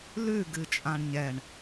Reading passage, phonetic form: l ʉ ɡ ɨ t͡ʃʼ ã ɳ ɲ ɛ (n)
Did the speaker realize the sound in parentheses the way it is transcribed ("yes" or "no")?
no